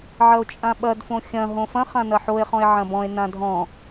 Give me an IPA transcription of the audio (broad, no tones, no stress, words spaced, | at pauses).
ʕɐo̯t͡ʃʼãɓɐd fõxʲɐ̃ ɦõfɐ̃ χãnɐħoe̯χɔ̃e̯ ʕɐ̃bɔ̃e̯ nãdʱɔ̃